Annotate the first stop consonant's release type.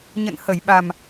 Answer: implosive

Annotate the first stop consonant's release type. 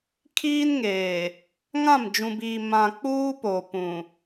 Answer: aspirated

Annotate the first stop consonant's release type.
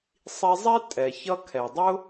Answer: ejective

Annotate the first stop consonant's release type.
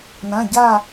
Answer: plain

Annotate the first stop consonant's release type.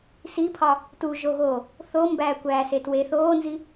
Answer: aspirated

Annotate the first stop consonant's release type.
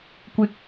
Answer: plain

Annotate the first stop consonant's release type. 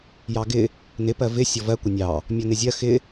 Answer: plain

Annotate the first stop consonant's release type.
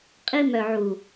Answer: ejective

